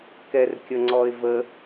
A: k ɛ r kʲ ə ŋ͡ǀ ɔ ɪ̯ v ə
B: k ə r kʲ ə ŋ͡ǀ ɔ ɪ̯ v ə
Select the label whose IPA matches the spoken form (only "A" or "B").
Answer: A